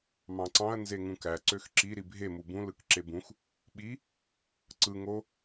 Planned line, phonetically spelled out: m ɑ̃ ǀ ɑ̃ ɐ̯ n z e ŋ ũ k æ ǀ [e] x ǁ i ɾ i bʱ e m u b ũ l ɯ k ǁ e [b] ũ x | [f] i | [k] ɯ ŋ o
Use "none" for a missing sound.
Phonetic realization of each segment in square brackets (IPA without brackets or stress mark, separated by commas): ø, b, ɓ, ǀ